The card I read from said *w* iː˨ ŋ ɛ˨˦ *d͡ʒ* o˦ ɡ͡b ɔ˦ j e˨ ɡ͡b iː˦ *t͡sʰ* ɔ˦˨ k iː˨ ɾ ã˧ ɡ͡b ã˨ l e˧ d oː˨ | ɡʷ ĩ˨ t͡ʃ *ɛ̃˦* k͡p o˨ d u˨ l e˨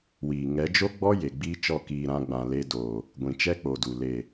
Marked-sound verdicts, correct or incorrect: correct, correct, incorrect, incorrect

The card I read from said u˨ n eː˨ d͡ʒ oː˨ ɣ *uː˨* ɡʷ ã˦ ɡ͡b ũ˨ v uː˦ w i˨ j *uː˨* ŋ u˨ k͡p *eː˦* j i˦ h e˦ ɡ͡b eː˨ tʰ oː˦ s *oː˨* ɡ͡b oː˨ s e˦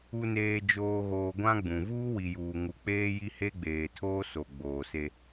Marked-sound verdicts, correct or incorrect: incorrect, correct, correct, incorrect

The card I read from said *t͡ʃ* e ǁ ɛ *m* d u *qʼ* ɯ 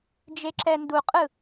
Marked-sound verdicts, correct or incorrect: incorrect, incorrect, correct

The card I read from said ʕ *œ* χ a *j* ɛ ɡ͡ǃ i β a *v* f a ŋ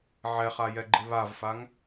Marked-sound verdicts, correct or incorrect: incorrect, correct, correct

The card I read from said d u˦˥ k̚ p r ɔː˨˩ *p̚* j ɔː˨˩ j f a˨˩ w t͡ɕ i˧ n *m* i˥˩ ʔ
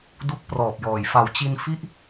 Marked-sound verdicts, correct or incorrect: correct, incorrect

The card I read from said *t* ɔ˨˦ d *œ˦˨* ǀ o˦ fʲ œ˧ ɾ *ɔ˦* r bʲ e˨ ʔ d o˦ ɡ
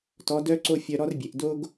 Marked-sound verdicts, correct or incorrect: correct, incorrect, correct

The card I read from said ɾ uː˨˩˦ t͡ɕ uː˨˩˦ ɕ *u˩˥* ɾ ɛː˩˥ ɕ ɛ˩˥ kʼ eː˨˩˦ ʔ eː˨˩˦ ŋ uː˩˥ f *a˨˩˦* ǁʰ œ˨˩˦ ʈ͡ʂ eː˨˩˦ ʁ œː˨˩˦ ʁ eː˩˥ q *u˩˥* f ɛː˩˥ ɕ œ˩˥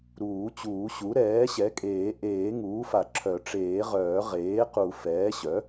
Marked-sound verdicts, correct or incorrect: correct, correct, incorrect

